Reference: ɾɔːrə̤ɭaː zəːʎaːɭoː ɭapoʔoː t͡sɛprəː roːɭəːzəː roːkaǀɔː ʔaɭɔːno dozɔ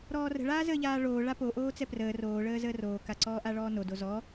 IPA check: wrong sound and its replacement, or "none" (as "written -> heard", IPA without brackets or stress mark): none